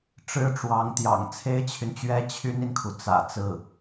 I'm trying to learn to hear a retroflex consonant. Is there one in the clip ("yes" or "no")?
yes